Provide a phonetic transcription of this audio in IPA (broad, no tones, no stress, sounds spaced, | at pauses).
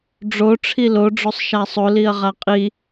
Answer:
ɖ͡ʐ o ʈ͡ʂʰ i l o ɖ͡ʐ o sˤ ʃ a sˤ o l i ɐ̯ ʁ a qʼ i